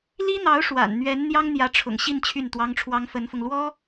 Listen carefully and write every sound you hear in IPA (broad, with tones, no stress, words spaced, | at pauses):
li˥n̪ɑ˧˥ʊ̯ ʂwa̰˨˩n n̪ɥɛ˧˥n n̪jɑ˥ŋn̪jä˧˥ʈ͡ʂʰʊ̰˨˩ŋ ɕi˥˧n t͡ɕʰy˥˩nt̪wɑ˥ŋʈ͡ʂʰwɑ˥ŋ fə˧˥nfʊ˧ŋ lwɔ˥